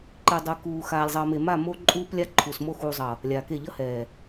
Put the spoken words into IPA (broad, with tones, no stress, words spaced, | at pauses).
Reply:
ǃi˨dˤɯ˨kuː˨ xaː˨lʲzˤʌː˨me˨ ma˦˨mo˦ ǃʼuː˦plʲa˦ǃʰu˨smo˦ xuː˨zˤʌ˨ | lʲaː˨ke˦˨ ʎʌ˦hɛː˨